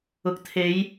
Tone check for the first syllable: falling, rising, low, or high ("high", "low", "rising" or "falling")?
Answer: low